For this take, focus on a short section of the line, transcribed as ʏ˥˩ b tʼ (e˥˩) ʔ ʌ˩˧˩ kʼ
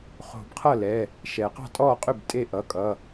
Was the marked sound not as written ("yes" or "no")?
no